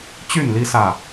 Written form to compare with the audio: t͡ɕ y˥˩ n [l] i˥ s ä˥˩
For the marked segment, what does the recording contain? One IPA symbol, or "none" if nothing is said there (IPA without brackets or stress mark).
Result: l